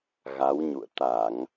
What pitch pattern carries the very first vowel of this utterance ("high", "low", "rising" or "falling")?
rising